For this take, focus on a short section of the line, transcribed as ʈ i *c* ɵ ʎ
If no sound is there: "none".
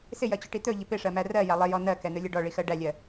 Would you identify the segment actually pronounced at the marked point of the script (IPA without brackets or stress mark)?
t̪